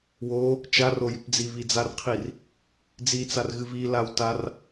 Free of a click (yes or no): yes